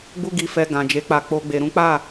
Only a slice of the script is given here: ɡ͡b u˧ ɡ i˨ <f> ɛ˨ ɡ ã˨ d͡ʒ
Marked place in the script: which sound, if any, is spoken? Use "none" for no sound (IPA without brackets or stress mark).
f